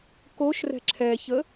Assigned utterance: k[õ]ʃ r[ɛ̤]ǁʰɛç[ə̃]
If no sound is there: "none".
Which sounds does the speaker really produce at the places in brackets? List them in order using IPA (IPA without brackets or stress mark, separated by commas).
o, ɛ̤, ə